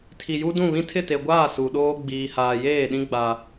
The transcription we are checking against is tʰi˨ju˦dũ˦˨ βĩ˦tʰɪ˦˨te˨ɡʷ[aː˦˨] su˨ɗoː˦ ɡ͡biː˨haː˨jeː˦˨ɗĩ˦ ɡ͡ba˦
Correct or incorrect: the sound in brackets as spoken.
correct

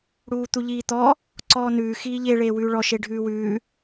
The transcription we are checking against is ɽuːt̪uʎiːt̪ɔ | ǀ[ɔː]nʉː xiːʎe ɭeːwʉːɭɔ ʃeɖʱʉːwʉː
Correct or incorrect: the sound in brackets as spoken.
correct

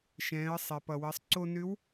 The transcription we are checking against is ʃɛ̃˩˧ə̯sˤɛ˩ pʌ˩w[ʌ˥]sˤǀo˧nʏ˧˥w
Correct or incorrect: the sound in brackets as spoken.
incorrect: ʌ˩˧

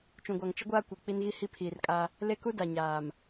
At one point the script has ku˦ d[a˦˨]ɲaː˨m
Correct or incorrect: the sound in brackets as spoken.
incorrect: a˨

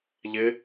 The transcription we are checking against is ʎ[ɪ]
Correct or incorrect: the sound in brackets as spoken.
correct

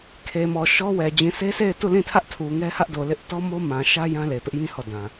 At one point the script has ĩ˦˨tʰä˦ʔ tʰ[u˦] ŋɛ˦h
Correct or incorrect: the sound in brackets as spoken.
incorrect: u˨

